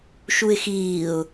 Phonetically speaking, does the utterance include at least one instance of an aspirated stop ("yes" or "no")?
no